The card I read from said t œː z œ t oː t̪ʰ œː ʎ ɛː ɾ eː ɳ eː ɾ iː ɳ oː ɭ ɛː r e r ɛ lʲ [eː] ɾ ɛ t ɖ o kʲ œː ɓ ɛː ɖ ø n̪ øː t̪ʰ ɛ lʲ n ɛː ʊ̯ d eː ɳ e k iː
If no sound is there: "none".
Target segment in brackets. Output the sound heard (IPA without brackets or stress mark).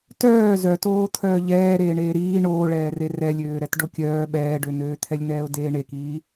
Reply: øː